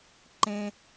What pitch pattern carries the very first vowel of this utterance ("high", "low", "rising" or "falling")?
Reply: low